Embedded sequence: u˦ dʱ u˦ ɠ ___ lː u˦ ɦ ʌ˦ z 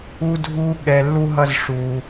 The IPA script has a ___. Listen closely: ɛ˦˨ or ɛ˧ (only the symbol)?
ɛ˧